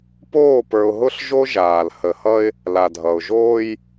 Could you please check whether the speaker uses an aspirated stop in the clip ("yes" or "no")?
no